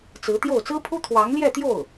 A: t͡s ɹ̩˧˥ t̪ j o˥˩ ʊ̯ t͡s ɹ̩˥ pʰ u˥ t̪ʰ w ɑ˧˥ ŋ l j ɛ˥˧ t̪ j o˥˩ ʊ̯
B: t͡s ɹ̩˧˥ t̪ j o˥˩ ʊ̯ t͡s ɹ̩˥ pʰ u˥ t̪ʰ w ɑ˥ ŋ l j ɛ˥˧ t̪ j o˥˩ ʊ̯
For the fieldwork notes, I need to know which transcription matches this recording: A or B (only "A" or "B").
A